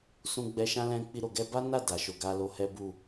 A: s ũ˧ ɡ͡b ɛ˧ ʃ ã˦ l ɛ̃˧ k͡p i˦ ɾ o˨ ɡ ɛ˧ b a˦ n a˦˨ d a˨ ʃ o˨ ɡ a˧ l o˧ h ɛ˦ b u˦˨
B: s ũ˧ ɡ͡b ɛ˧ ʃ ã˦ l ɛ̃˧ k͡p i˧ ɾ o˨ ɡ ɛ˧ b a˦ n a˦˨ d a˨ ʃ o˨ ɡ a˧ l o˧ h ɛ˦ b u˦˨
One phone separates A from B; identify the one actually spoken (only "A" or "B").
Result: B